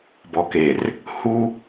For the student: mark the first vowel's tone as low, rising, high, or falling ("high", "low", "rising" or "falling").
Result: low